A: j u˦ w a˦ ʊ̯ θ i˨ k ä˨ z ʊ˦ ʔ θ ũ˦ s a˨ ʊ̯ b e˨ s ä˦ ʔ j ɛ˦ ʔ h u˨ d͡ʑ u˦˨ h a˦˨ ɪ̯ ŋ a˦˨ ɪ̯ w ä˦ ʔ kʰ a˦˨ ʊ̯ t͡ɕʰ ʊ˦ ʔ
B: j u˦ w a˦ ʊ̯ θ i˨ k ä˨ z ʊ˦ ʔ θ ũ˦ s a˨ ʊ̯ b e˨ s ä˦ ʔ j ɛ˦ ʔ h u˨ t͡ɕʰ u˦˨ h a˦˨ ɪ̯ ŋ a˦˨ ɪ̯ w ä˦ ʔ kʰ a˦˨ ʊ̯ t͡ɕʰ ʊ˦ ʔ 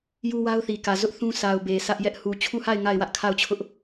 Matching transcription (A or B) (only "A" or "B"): B